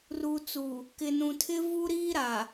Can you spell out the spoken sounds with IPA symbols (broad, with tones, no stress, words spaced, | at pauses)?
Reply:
ruː˨t͡su˨ | kɪ˨nũ˨tʰɪ˦ vu˦ ɾiː˦ɾa˨